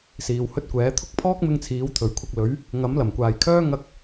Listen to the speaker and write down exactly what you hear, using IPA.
s iː˨ w h ɵ˧ t̚ kʷ ɛː˨˥ t̪ʰ ʊ˥ k̚ pʰ ɔː˥ k̚ m ɪ˧ ŋ t͡sʰ iː˨˧ w t̪ʰ ɵ˨˩ ɥ kʷʰ ɐ˧ k̚ l ɵ˨˥ ɥ | ŋ ɐ˨˥ m l ɐ˨˩ m kʷ aː˨ j kʰ œː˥ ŋ ɐ˥ k̚

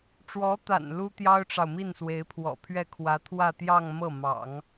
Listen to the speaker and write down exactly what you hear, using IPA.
ʈ͡ʂ w ɔ˧˥ t̪ a̰˨˩ n l u˥ t̪ j ɑ˥ ʊ̯ ʈ͡ʂ ɑ˨ ʊ̯ m i˥˩ n s w e˧˥ ɪ̯ pʰ w ɔ̰˨˩ pʰ ɥ ɛ˥˩ kʰ w ä˧˥ t̪ʰ w ä˥˧ t̪ j ɑ˥˧ ŋ m ɤ˥˩ m ɑ̰˨˩˦ ŋ

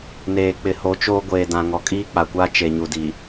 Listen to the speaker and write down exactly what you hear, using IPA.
n eː˨ k͡p ɪ˨ h o˨˦ t͡ʃ oː˦ ɡʷ eː˨ d ã˨ ŋ ɔ˨ kʼ iː˦ k͡p a˨ kʷ aː˦ t͡ʃ e˨ ɲ u˨ d i˨

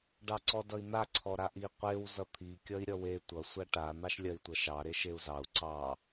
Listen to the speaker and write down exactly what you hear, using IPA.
ɖ ɑ ǀ ɔ d ʌ i̯ n̪ a ǀʰ ɔ ɾ a ʔ i qʷ e w z ʌ t̪ʰ i kʲ ʌ i̯ ɾʲ ʌ w e tʷ ʌ sʷ a ʈ a n̪ ɑ ʃ lʲ ɜ i̯ tʷ ʌ ʃ ɑ ɾ e ʃ e u̯ z ɑ u̯ ǀ ɑ

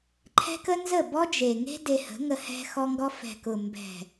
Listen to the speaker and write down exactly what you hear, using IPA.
ǃʰ ɛ̤˦ k ə˦ n z ə˦˨ b ɔ˦ d͡ʒ e˨ ŋ e̤˦ d e˧ h ə̤˨˦ ŋ ə˧ h ɛ̤˧ x ɔ˦ ŋ ɡ ɔ˦ f ɛ̤˨ k ʊ˨ m b ɛ̤˨

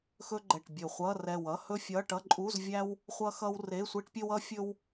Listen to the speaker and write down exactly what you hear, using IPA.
x ɵ˥ ɡ͡ǃ ɛ˧˩ ʈ bʲ ɵ˧˩ χʷ ʌ˧˥˧ r ɛ˧˩ w ʌ˧˥˧ h ɵ˥ fʲ ʌ˧˥˧ ʈ ʌ˧˥˧ ǃʼ u˧˥˧ z vʲ æ˥ w | χʷ ʌ˥ x ʌ˥ w r e˧˥˧ sʷ e˥ ʈ pʲ ɵ˥ w ʌ˥ fʲ ɵ˥ w

